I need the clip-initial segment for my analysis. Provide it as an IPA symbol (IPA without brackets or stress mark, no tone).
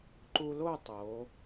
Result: ǃ